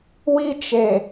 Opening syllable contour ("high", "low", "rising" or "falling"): high